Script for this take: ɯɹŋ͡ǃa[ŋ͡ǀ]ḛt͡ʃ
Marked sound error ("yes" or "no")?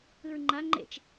yes